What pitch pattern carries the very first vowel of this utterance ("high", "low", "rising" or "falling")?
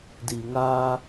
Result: low